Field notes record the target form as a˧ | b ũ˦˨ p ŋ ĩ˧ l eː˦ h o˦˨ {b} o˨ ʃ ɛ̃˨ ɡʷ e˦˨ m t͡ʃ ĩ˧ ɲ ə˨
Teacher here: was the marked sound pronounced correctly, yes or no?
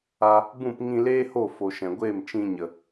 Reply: no